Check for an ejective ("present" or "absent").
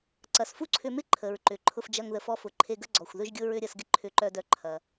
absent